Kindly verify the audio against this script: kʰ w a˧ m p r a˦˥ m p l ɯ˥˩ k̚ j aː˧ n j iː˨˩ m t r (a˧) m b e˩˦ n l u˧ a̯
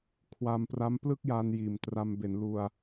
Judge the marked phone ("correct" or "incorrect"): correct